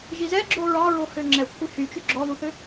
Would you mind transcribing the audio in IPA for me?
ʒ i z ɛ ɡ͡ǁ o ɹ ɑ ɹ o h ø ŋ͡ǁ ɛ kʷʰ i h y t͡ʃ y ɡ͡ǁ ɔ ð u θ ø

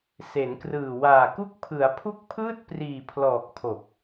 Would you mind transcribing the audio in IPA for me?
s e˩˦ n k r ɯː˨˩ w aː˨˩ k u˦˥ k̚ pʰ ɯ˩˦ a̯ pʰ u˦˥ k̚ pʰ ɯː˥˩ t̚ p r iː˨˩ pʰ l ɔː˨˩ k̚ pʰ o˨˩ k̚

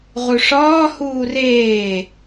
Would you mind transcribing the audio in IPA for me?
ʁ u ʂ ɒː h uː r eː

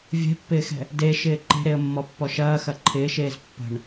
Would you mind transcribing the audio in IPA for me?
vʲ ɛ̤ pː ɪː x ɛ̤ | d e ʃ ɪː ǃ e̤ ɾ e ə̯ mː ɔ pː ɔ ʃ ɐː x ɐ ǃʰ ɪː ʃ eː z pː ə̤ ɳ

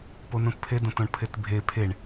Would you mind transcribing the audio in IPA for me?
p o n ũ t pʰ e d õ t õ ɳ pʰ e t bʱ e pʰ e ɳ

